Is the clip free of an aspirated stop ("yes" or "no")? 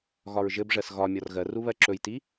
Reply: yes